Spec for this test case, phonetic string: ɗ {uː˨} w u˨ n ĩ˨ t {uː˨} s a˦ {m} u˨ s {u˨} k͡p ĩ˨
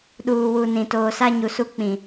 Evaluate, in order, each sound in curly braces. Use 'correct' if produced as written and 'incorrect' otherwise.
correct, incorrect: oː˨, incorrect: ɲ, incorrect: u˦

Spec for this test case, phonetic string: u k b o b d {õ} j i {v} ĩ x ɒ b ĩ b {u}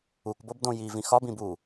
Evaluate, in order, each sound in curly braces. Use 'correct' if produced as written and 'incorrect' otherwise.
correct, correct, correct

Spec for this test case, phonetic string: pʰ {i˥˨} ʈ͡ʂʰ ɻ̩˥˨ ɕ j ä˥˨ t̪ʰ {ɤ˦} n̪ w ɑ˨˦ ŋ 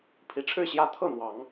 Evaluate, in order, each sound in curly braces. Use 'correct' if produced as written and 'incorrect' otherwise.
incorrect: i˨˦, incorrect: ɤ˥˨

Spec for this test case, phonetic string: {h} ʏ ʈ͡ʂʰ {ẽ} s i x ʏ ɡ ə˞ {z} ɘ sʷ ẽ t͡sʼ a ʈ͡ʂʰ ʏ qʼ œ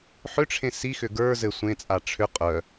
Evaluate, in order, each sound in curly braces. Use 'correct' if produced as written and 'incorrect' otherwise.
incorrect: ħ, correct, correct

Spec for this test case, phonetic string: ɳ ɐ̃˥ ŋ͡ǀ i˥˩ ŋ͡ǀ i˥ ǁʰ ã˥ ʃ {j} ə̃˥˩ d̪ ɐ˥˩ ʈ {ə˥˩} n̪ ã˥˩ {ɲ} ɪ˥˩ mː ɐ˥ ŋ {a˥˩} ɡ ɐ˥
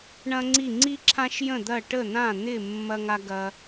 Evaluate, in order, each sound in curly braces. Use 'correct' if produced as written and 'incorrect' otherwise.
correct, correct, incorrect: n̪, incorrect: a˥

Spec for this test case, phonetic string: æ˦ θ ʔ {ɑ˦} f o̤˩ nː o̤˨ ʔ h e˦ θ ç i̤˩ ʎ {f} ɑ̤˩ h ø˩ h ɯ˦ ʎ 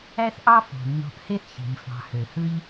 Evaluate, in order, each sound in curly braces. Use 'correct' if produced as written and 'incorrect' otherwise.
correct, correct

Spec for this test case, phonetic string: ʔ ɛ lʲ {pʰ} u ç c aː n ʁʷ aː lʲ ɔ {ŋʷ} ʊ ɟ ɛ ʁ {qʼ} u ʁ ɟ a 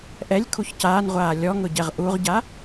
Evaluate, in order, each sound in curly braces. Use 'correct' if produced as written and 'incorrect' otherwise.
incorrect: kʰ, incorrect: ŋ, incorrect: ʔ

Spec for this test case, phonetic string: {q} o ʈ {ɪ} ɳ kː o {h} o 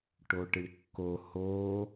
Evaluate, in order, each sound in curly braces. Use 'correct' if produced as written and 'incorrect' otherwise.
incorrect: ʈ, correct, correct

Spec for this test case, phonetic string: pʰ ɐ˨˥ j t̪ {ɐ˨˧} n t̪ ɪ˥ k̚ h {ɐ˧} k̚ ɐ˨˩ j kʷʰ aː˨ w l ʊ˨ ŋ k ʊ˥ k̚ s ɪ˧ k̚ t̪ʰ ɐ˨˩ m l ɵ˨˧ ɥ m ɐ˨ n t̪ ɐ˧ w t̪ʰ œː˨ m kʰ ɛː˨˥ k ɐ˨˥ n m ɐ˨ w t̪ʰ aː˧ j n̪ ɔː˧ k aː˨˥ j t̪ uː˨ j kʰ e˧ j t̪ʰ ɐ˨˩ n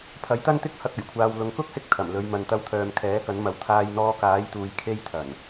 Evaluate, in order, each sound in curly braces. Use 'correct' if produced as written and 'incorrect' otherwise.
incorrect: ɐ˥, correct

